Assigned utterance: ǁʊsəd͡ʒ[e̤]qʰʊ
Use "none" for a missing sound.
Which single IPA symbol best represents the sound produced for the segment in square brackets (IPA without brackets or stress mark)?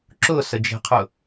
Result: e̤